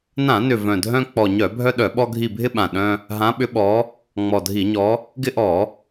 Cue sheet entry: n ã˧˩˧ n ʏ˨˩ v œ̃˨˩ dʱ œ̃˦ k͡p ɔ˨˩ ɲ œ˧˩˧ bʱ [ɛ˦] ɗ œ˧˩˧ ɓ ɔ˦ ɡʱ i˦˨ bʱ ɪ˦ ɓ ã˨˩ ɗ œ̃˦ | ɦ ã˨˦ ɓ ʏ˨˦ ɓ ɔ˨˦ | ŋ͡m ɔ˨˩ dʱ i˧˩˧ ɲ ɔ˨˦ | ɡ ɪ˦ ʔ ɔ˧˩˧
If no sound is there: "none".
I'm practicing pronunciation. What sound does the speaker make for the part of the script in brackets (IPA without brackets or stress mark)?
œ˦